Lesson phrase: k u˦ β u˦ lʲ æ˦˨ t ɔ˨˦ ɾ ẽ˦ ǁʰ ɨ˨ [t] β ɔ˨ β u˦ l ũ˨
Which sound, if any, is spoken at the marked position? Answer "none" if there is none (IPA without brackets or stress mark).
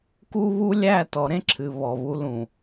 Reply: none